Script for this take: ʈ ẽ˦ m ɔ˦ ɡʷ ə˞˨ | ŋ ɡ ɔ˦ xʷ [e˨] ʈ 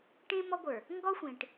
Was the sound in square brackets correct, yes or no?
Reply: no